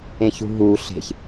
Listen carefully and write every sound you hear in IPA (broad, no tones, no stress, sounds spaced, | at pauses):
ẽ ç ṳ ɦ uː ɬ e̤ ç